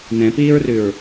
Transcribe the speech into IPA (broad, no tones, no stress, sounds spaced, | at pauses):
n ɛ̃ p iː ɹ r ʉ ɹ